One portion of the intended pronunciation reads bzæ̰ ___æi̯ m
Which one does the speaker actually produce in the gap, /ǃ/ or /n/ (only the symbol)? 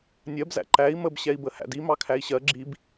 ǃ